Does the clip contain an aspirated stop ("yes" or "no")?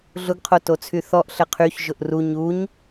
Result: yes